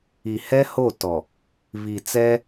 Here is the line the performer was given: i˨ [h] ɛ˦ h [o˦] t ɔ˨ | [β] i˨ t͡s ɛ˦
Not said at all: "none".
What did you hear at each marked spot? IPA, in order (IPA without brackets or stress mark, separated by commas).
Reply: h, o˦˨, β